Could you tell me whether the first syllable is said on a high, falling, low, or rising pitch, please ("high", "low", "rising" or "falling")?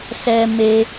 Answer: high